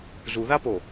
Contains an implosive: no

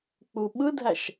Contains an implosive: yes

